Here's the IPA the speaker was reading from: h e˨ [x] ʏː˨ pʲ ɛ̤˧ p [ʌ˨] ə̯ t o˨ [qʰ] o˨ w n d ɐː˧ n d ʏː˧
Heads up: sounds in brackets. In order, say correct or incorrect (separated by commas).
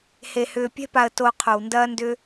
incorrect, incorrect, correct